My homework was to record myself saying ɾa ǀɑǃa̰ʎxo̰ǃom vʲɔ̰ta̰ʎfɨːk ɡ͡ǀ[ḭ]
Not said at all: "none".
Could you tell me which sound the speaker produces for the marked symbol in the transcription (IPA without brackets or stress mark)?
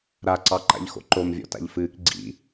ḭ